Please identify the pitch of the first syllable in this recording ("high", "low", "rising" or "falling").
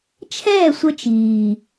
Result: falling